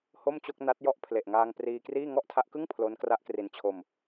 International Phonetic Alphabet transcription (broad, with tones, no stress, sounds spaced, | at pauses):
h o˥˩ m t͡ɕ o˥˩ k̚ n a˦˥ t̚ j ɔ˦˥ ʔ pʰ l e˨˩ ʔ ŋ aː˧ ŋ p r iː˧ k r iː˥˩ ŋ ɔ˥˩ ʔ tʰ a˦˥ ʔ k ɯ˥˩ ŋ pʰ l o˦˥ n k r a˦˥ ʔ k r i˧ n t͡ɕʰ o˧ m